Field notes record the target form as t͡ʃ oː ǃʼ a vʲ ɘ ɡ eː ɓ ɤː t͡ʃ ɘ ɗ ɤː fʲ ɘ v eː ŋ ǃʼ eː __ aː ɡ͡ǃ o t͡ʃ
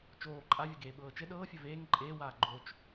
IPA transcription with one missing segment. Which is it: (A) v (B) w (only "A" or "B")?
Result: B